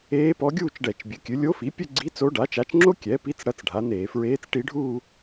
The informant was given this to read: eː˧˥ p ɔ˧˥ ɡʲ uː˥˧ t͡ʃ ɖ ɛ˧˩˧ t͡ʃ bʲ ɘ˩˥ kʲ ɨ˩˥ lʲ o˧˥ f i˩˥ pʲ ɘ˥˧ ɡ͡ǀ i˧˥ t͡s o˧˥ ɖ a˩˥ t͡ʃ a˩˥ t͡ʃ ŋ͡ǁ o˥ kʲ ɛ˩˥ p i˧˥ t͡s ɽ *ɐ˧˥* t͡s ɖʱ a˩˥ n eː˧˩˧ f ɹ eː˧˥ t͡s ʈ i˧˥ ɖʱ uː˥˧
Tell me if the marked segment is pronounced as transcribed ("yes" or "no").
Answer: yes